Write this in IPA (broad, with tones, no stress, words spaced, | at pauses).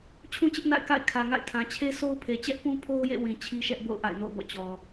t͡ɕʰũ˦t͡ɕɪ˦ʔ na̰˦˨ɪ̯ka̰˦˨ɪ̯ kʰä˨ŋa̰˦˨ɪ̯tʰã˨ t͡ɕʰe˦so˦ʊ̯pʰe˨ t͡ɕɛ˦ʔpũ˦pʰo˦ʊ̯jḛ˦˨ wĩ˨ t͡ɕʰi˦ʃɛ˦ʔbo̰˦˨ʊ̯ ʔa̰˦˨ɪ̯no̰˦˨ʊ̯bɔ̰˦˨ t͡ɕɔ˨